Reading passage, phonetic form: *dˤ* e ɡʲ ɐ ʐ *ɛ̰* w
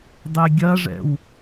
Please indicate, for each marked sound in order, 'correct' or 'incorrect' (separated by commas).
correct, correct